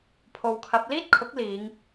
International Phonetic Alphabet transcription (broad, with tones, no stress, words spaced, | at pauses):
pʰo˨wkʰɐ˨˥p̚ liː˥t̚kʰʊ˨˥k̚ liː˨˧ŋ